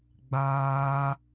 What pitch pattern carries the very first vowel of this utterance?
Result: high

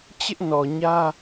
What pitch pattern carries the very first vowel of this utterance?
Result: high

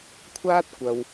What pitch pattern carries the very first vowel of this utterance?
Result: high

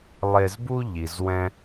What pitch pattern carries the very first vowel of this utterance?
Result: low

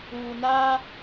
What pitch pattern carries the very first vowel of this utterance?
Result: low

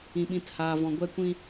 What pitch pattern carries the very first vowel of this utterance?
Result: low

